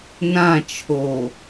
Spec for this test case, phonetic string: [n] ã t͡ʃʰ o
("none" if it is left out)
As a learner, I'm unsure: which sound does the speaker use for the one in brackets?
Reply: n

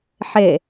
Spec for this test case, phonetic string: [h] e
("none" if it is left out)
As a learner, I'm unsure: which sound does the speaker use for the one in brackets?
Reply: ħ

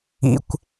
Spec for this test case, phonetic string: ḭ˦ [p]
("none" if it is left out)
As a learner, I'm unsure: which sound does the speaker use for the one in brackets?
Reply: kʷ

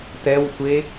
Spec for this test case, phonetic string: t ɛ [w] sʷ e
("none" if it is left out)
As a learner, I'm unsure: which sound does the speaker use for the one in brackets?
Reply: w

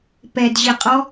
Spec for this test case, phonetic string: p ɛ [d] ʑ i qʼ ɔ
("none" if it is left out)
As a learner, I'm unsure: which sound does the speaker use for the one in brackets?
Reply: d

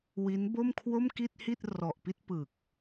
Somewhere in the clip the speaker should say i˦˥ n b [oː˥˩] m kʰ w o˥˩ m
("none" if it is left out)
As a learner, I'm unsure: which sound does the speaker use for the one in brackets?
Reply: o˥˩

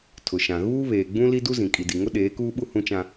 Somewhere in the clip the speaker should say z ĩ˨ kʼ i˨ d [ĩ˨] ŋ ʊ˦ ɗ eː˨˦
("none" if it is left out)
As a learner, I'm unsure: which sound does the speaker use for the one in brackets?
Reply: i˨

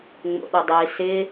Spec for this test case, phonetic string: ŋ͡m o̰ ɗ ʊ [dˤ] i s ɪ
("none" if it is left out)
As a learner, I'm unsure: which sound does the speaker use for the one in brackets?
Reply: dˤ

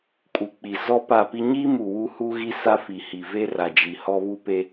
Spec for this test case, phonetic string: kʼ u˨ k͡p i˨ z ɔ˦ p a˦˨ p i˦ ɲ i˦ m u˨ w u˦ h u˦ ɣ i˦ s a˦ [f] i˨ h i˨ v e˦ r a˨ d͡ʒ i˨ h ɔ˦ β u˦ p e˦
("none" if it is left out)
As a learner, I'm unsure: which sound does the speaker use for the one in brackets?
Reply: f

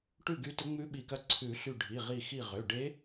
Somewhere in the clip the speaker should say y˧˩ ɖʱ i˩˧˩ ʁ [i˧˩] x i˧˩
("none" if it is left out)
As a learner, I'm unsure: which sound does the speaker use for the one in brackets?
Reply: i˧˩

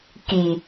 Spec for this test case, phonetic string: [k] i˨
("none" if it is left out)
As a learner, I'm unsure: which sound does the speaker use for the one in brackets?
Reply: k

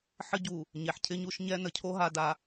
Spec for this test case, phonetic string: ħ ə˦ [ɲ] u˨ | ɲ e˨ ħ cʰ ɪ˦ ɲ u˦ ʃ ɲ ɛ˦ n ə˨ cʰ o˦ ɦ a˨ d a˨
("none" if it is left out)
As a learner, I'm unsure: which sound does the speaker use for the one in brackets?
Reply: ɟ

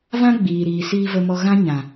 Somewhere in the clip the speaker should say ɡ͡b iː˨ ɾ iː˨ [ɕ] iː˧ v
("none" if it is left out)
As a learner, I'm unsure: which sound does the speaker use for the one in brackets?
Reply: s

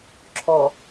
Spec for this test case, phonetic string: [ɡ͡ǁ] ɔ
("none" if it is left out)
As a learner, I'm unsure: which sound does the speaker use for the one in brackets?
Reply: ǁʰ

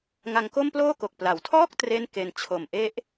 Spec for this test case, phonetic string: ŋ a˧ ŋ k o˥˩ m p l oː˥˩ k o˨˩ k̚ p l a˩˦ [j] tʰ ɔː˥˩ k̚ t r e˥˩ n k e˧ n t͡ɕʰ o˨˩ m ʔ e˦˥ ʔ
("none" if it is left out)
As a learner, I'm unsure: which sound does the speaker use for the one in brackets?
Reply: w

